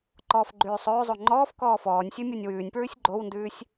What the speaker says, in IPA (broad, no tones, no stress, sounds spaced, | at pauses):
ǃ ɔː f ɡ͡ǃ ʉː sˤ ɵː zˤ o ŋ͡ǃ ɔː f k ɔː f ɔː nʲ sʲ ɵ mʲ o nʲ w ʉː nʲ p ɹ ʉ sʲ ɡ͡ǃ o w n d ʉː sʲ